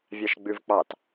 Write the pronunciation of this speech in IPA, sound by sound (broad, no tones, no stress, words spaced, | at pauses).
vʲɑʃɡ͡bʉvk͡pɑt